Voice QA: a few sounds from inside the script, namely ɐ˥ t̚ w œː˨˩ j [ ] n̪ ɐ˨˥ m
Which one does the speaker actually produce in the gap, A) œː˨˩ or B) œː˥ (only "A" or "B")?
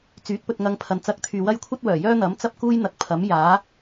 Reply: B